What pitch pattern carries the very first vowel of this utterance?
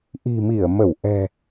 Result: low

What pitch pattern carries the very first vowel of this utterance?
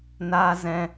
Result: high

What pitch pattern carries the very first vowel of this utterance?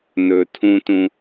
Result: low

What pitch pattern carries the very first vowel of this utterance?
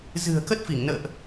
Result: low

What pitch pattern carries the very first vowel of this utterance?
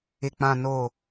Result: low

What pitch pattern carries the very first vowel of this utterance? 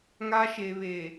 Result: high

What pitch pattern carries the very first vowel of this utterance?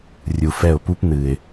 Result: low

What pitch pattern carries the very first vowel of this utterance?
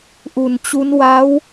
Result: low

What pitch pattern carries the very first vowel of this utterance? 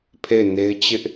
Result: falling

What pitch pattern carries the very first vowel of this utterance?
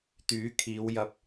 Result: rising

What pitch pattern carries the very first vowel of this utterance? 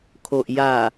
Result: low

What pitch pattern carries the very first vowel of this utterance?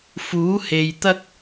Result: rising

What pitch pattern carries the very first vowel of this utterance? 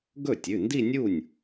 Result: falling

